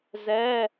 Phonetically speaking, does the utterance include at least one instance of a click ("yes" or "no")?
no